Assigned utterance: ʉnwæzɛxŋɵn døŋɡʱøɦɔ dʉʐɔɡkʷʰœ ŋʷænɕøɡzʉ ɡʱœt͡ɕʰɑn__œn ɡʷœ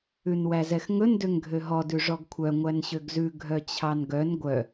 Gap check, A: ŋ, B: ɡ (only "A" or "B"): B